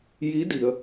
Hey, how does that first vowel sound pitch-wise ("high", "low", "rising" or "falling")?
rising